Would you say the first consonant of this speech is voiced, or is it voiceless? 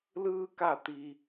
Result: voiced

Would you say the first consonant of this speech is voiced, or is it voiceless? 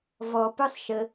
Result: voiced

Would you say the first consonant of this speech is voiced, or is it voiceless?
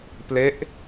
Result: voiceless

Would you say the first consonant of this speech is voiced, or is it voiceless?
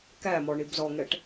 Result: voiceless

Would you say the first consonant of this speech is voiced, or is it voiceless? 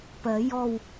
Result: voiceless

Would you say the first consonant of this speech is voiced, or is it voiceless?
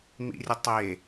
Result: voiced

